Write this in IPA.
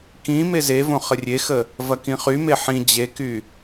k ĩ m e z e v õ χ ə rʲ e x ə | v ɐ k ĩ χ y m e ħ ĩ d͡ʑ e k y

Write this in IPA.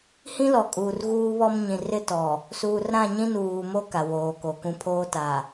h ĩ˦ l ɔ˨ kʼ uː˨ r ɣ uː˦ β ɔ˦ m ɲ ĩ˨ r ɪ˦ t ɔ˨ | s uː˨ r ɾ ã˦˨ ɲ ĩ˦ n uː˨ m o˦ k a˨ w oː˨ k o˨ k ũ˦ pʰ oː˦ t a˨

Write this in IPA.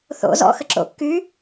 θ o̰ z ɔ̰ x ə ǁ o̰ kː y

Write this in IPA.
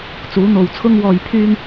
t͡s uː˨˥ n̪ o˨ w t͡sʰ ʊ˧ ŋ w ɔː˨ j pʰ yː˧ ŋ

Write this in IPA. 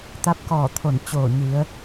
t̪ a˧˥ p̚ k ɔː˧˩ t̪ʰ o˧˩ n t͡ɕ oː˧˩ ɲ i˩˧ ə̯

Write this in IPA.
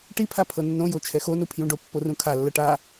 ʈ i pʰ a pʰ ɤ nː õ j o t͡ʃʰ ɛ x o n u pʰ j ũ ɖ o pː o r ũ kʰ a lː ɤ ʈ a

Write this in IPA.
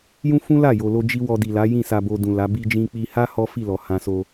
j ũ˦ f ũ˦ l a˦˨ j o˨ l o˧ d͡ʒ i˧ w ɔ˧ d i˨ l a˨˦ j ĩ˦˨ s a˧ b o˧ d ũ˨ l a˨˦ b i˧ d͡ʒ ĩ˧ k͡p i˧ h a˦ h ɔ˦ f i˦˨ l ɔ˨ h ã˧ s o˧

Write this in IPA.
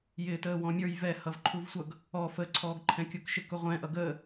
j ɪː t əː w ɔ̃ mʲ ə˞ j v ɛ h ʌ v ǃʰ u v sʷ ʌ ɡ | ɔ f ə ǀʰ ɔː ɡ ǃʰ ɛ̃ kʲ ʊ k ʃ ɪ k ʊ ʁʷ ɛ̃ ʔ ʌ ɡ əː

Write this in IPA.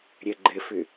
ɾʲ ə ɡ͡ǃ ɘ f ʏ

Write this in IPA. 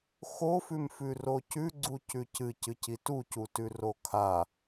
x o f ʉ m f ʉ r o c ʉ ɡ͡ǀ u c ʉ c ɨ c ɨ c i t u c u t ʉ r o kʰ a

